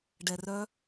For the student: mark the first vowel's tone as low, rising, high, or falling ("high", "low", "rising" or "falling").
low